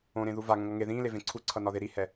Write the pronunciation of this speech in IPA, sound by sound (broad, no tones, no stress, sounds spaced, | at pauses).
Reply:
õ ɾ ẽ ð u v a ŋ õ ŋ ʌ ŋ e ð ĩː l e v ẽ ǀʰ u ǀʰ ʌ n ɒ ð e ɾ i h ɛ